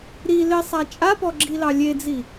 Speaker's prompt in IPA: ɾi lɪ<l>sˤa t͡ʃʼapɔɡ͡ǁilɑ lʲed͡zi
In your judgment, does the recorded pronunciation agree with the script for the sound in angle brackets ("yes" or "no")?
no